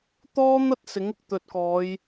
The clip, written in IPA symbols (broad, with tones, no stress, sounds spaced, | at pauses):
t̪ ɔː˥ n̪ ɐ˥ t̚ s ɪ˨˥ ŋ ɪ˨˥ k̚ t̪ ɵ˨ t̚ k ɔː˨˧ j